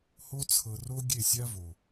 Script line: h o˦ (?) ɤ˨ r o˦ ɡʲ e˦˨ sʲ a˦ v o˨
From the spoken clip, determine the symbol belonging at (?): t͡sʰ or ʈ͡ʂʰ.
t͡sʰ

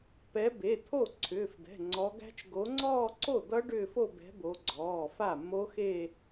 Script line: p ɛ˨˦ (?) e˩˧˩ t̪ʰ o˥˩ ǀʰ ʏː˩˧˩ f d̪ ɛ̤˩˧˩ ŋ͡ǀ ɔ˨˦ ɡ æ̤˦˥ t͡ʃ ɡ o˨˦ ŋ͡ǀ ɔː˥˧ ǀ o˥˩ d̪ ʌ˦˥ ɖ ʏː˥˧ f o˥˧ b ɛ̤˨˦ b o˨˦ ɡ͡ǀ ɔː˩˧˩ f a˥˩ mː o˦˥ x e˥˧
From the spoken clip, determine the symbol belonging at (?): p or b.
b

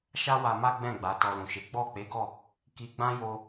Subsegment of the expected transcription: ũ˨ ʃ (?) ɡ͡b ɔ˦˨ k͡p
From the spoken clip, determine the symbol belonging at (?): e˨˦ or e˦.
e˨˦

